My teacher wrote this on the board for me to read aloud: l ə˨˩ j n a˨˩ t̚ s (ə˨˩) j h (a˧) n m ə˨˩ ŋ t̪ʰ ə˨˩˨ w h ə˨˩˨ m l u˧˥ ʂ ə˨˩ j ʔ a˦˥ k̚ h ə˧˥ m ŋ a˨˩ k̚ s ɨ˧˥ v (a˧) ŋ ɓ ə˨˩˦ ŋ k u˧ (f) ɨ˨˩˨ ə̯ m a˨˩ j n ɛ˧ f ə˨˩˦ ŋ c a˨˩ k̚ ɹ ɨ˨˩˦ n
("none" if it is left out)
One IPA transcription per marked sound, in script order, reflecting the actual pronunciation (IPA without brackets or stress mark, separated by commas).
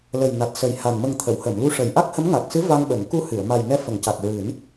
ə˨˩, a˨˩, a˧, h